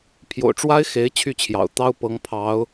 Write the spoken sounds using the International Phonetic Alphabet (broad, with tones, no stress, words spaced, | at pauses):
pʰjo̰˨˩ʊ̯ ʈ͡ʂwa˥ɪ̯ xe˧˥ɪ̯ t͡ɕʰy˥˩t͡ɕʰjɑ̰˨˩ʊ̯ t̪ɑ˥ʊ̯pɤ˧˥ŋpʰɑ˧˥ʊ̯